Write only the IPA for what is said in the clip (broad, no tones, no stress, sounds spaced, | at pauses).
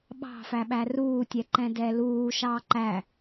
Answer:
ɓ ɑ̤ f æ ɓ æ r uː tʲ ɛ ǃ ɛ̃ d ɛ l uː ʃ ɑː ǃ æ